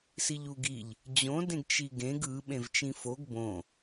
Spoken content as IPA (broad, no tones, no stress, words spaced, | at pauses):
siʎuɡiʎ | d͡ʑõ dẽɡt͡ʃiɡẽɡ ɯ ɓẽvt͡ʃĩfoɡ bõ